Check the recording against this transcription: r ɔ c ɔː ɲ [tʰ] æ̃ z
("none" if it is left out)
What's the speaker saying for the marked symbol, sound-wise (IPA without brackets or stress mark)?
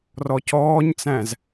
t͡s